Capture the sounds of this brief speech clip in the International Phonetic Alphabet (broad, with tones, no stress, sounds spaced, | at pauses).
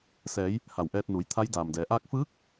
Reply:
s ɛː˩˧ j | h a˧˩ w ʔ ɛː˧ t̚ n uː˩˧ j t̪ʰ a˧˥ j d aː˩ m d ɛː˩˧ ʔ aː˧ k̚ f ɯː˧˥ k̚